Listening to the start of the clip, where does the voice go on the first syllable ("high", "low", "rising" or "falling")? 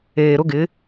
low